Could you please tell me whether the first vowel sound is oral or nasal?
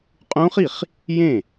nasal